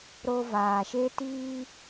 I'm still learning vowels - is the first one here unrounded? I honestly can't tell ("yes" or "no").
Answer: no